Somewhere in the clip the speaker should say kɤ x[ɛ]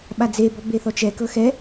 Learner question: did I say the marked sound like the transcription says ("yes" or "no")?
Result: yes